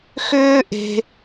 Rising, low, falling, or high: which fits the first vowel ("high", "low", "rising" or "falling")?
high